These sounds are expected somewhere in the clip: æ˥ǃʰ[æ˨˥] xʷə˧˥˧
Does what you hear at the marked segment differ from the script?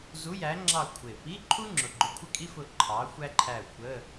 yes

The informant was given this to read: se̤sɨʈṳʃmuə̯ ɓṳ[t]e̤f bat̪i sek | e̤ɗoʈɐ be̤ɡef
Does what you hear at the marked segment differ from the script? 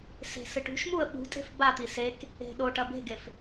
yes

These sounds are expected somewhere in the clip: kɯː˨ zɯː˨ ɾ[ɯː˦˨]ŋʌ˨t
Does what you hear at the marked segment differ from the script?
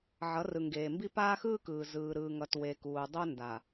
yes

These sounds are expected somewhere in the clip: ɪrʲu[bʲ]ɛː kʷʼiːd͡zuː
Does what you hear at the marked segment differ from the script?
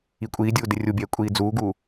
no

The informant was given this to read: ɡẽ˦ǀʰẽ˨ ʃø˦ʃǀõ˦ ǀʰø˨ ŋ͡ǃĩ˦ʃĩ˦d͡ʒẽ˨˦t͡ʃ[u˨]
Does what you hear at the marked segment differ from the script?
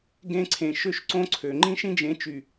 yes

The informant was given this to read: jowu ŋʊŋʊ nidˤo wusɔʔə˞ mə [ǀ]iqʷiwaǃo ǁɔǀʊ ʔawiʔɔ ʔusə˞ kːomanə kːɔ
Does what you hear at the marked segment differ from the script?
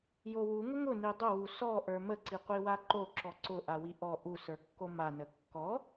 no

